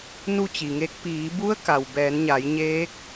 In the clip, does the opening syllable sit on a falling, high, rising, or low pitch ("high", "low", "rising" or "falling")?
falling